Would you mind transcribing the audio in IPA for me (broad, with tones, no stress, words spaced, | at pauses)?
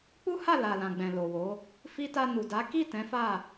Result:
k͡pu˦ha˦˨ la˨lã˨ɡ͡bɛ̃˨ lo˨wo˨˦ | fi˧ta˧ nu˨da˨˦ ki˦˨ tɛ̃˨˦fa˦˨